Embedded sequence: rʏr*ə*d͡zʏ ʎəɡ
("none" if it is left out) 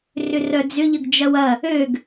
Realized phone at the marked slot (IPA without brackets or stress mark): œ